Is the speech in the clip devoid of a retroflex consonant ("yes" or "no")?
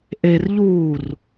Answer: yes